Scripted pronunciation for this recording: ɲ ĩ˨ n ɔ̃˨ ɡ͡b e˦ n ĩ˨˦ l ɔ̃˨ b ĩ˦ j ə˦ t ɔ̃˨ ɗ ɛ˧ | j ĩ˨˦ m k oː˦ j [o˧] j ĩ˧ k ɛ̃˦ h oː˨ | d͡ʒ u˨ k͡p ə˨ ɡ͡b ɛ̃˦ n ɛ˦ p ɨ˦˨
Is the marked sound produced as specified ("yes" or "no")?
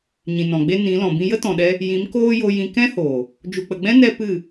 yes